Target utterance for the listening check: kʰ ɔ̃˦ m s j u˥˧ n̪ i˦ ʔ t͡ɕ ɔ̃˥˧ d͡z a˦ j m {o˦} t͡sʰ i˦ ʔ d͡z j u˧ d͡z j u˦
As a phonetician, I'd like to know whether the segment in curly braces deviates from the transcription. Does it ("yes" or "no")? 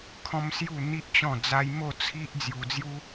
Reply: yes